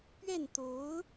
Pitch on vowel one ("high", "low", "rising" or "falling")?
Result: falling